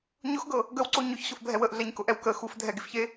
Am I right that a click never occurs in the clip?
no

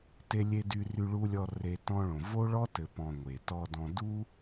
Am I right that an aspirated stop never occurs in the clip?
yes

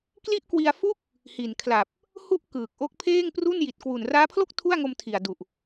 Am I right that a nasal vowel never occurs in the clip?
yes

